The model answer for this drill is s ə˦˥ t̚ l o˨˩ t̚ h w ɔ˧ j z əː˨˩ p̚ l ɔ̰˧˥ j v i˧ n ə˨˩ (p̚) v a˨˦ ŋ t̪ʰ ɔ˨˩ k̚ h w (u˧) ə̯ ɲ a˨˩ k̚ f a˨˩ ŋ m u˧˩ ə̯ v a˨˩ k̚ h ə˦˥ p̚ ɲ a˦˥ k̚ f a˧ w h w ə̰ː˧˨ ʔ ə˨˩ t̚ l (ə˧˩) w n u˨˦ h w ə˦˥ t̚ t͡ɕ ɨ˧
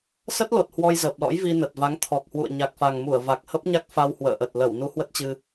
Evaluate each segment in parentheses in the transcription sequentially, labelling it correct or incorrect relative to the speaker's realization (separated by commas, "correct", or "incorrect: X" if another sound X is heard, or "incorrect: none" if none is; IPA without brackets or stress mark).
incorrect: t̚, incorrect: ṵ˧˨, correct